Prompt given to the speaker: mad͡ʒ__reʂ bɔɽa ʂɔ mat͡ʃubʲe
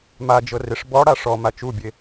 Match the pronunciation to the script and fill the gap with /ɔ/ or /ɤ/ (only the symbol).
ɤ